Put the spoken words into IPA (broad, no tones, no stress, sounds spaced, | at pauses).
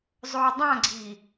zˤ oː dˤ ã ɡ͡ǀ i